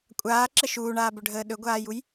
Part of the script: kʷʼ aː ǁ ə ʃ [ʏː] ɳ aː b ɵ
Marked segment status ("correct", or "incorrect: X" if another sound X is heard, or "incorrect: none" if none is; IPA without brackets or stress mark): incorrect: uː